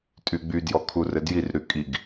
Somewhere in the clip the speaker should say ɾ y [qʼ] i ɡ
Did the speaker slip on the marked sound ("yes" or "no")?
yes